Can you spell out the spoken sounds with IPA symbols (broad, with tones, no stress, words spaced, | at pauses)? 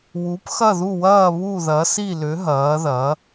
wu˩˥p xɐ˥˩ðu˥˩wɐː˥˩ βu˥˩ðɐ˩˥si˥˩lʏ˩˥ ɦɐː˩˥ðɐ˩˥